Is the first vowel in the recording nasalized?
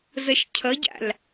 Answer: no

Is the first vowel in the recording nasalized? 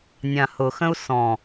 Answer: yes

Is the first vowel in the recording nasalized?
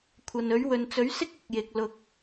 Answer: no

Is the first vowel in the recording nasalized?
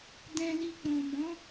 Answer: yes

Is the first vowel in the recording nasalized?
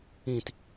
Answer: yes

